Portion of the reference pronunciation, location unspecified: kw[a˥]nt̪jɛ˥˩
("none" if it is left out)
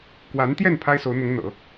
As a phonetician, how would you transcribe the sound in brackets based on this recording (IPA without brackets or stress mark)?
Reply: a˧˥